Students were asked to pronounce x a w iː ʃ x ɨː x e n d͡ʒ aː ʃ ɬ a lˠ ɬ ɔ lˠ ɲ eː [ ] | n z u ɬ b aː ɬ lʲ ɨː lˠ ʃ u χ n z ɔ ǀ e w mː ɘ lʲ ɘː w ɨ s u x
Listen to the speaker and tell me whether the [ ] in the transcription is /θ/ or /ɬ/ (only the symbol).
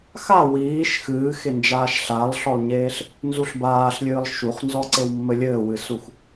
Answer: ɬ